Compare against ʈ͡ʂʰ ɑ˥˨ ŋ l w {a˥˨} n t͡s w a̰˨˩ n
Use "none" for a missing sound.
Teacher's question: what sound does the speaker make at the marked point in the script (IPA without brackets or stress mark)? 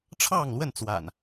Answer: ə˥˨